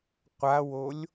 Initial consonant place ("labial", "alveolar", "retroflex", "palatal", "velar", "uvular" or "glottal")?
uvular